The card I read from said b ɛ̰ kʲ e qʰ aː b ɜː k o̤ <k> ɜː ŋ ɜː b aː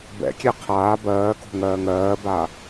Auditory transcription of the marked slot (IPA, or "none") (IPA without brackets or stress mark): ŋ